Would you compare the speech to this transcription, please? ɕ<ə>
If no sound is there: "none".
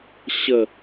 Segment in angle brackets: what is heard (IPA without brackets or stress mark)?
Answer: ə